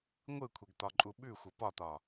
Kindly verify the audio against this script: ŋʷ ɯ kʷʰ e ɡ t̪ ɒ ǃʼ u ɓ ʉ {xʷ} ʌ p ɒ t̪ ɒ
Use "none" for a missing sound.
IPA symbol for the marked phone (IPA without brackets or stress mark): xʷ